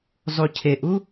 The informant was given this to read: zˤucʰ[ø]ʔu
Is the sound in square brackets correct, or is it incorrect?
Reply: incorrect